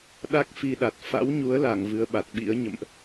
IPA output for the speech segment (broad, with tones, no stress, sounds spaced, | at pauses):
ɗ a˦˥ k̚ f i˧ ɗ a˨˩ t̚ f a̰˧˥ w ɲ u˨˦ ə̯ l a˧˩ ŋ v ɨ˨˦ ə̯ ɓ a˨˩ t̚ ɓ ḭ˧˥ ə̯ ɲ ə̰˧˨ m ʔ